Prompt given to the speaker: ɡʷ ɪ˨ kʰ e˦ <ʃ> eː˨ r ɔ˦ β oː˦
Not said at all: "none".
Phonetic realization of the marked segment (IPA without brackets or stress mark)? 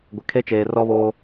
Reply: t͡ʃ